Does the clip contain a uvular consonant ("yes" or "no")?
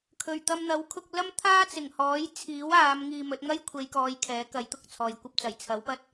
no